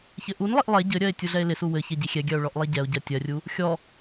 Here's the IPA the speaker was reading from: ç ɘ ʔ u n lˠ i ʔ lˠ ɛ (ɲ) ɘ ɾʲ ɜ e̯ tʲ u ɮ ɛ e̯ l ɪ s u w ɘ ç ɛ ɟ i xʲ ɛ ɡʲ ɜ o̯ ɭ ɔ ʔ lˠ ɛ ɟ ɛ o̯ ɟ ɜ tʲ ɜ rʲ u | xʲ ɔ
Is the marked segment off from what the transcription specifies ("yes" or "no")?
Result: yes